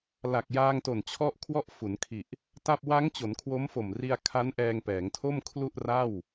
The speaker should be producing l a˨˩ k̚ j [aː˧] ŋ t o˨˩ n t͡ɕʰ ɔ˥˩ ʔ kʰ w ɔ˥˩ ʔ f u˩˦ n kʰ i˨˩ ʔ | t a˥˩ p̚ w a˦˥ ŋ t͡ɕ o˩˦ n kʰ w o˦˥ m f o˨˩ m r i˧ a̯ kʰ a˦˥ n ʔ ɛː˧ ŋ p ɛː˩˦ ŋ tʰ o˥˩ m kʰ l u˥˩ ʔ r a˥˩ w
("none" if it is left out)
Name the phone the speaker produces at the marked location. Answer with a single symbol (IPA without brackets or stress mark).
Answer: aː˧